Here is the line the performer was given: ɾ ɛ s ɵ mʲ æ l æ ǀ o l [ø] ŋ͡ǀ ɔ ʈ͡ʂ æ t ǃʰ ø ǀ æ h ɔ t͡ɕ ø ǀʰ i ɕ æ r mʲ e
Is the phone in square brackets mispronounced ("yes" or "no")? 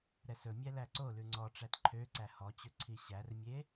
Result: yes